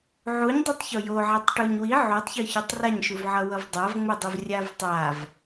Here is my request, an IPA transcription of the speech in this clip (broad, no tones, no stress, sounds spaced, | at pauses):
ʕ u ɲ dˤ u tˤ ç o j o ʕ ɛ tˤ ʈ u ɲ w i ʕ u tˤ ç ɯ ç o tˤ r a ɲ ʃ u v ʕ ʌ w ʌ v dˤ a v ŋ͡m ɯ dˤ u v rʲ a v tˤ a v